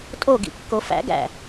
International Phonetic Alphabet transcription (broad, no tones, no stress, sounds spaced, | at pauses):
tʼ o ɡ ḭ kː o f æ̰ ɡ æ̰